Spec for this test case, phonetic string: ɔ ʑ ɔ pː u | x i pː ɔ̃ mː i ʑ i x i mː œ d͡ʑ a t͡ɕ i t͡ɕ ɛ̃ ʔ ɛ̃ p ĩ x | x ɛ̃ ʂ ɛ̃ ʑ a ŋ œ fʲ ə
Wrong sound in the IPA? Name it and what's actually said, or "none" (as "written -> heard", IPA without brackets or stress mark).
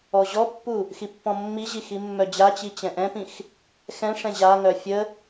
none